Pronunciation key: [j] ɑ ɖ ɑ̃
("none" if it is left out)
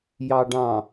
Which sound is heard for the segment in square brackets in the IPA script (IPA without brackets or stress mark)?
j